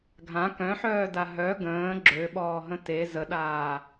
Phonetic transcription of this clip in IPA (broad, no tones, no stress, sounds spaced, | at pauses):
ɡʱ ã k œ̃ ħ œː d a ɦ œ ɡ ə̃ː ɡ͡ǁ ø ɓ ɔː ɦ ə̃ t e z ə ɗ aː